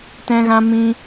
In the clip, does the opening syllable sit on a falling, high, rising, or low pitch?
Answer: high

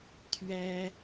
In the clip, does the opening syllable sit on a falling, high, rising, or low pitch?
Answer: high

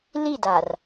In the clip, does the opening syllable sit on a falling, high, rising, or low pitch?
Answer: falling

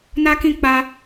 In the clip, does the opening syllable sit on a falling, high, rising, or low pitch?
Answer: high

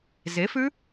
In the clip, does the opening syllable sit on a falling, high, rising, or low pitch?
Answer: rising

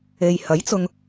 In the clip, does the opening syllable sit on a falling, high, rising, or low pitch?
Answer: low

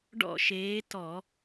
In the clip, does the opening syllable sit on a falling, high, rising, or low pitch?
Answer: falling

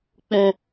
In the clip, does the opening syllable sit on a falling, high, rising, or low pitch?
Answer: low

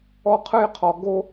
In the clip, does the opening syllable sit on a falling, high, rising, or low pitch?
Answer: high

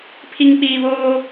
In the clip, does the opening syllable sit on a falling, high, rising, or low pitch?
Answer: low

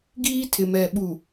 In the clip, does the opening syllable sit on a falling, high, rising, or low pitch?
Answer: high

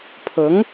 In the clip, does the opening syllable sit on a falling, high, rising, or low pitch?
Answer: rising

